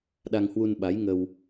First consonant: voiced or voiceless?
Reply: voiced